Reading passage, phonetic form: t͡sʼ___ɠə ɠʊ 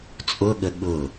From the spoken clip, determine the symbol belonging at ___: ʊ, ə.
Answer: ʊ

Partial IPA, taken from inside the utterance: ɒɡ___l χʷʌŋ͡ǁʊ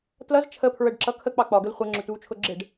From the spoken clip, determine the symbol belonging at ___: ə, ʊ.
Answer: ə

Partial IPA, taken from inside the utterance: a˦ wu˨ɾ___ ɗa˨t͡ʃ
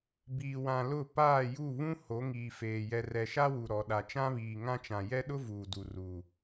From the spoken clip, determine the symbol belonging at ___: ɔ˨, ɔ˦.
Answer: ɔ˨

